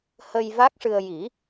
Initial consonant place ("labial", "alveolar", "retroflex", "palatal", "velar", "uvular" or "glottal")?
glottal